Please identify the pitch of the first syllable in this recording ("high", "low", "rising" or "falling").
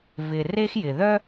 low